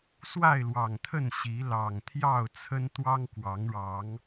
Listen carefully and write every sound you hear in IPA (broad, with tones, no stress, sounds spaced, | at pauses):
s w a˥˨ ɪ̯ l w ɑ˨˩ ŋ t̪ʰ ə˥˨ n ɕ i˨˦ l ɑ˨˩ ŋ t̪ʰ j ɑ˥˨ ʊ̯ t͡sʰ ə˦ n t̪ w ɑ˦ ŋ k w ɑ˨˦ ŋ ɻ ɑ˨˦ ŋ